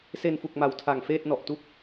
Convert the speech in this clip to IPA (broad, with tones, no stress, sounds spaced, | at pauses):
s e˧ n f u˨˩ k̚ m a˨˩ w tʰ a˨˩ ŋ f eː˥˩ t̚ n ɔ˨˩ ʔ t u˥˩ k̚